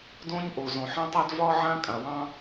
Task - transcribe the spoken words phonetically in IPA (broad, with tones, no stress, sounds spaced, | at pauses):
d õ˦ ɲ ʔ o˨ z õ˨ ħ ã˦ tˤ a˦ d v ɒ˦ ʕ ã˦ kʼ ã˨ w ɑ̃˦